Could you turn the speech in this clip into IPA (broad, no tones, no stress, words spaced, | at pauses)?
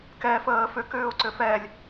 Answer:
kɛfəː fʏkʏːʊ̯ǀʏ fɛlʲ